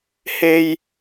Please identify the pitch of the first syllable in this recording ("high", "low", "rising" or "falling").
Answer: low